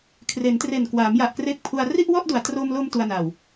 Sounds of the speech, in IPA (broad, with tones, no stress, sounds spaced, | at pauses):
kʰ r e˩˦ n t r e˨˩ n k w aː˩˦ m j a˨˩ ʔ k r e˦˥ k̚ pʰ u˧ a̯ r i˥˩ ʔ w ɔ˥˩ ʔ d u˨˩ a̯ t r o˧ m l o˧ m t u˧ a̯ n a˨˩ w